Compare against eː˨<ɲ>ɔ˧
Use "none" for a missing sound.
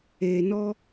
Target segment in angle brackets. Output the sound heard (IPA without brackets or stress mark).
n